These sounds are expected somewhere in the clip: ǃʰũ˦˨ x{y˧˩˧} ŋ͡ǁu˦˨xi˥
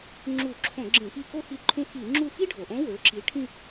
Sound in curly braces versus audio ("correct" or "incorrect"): incorrect